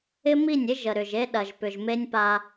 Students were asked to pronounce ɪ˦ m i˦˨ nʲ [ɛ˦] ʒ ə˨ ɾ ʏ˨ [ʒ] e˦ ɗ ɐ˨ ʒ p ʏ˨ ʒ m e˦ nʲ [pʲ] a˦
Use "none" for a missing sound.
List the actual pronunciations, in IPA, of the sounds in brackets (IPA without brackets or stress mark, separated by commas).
ɪ˦, ʒ, p